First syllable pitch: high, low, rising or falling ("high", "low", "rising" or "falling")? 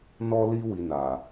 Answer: high